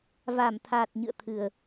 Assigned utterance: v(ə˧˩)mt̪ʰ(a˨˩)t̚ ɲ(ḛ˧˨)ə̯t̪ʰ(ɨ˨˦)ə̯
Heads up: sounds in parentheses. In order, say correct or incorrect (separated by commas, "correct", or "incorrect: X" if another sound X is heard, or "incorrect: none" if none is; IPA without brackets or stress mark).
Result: incorrect: a˧˩, correct, incorrect: ɨ̰˧˨, incorrect: ɨ˨˩